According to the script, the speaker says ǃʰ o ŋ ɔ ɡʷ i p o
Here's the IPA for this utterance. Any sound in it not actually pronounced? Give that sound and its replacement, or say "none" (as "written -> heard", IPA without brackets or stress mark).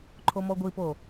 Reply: ŋ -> m